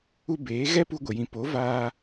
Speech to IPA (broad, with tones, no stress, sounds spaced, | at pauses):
u˧ b eː˨˦ ɣ ɛ˦ p u˧ ɡʷ ə˨ j ĩ˨ p o˨˦ v aː˧